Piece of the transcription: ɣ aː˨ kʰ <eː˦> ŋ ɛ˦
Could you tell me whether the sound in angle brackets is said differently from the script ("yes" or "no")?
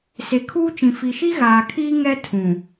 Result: yes